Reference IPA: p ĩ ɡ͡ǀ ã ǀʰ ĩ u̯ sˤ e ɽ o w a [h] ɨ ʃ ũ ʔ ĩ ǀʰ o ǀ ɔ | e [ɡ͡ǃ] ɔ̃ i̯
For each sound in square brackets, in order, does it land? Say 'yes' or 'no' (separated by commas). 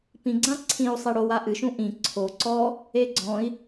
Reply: no, no